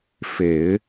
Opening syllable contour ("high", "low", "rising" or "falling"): low